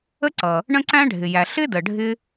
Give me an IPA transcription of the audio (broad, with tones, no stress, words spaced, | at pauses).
ə˥ǀʌ˩ | ɳə̃˥ǀæ̃˥ɖʱɪ˩jæ˩ ɬɪ˥də˩ ɖʱɪ˥